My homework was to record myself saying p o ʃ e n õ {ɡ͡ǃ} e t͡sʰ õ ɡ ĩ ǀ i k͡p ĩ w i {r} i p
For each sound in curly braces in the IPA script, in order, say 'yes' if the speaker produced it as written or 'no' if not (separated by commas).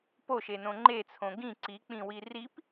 no, yes